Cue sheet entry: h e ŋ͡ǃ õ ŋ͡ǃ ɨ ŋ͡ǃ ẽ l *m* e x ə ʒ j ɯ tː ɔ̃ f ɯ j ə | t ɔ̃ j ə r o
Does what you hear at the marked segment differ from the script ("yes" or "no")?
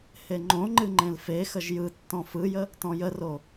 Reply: yes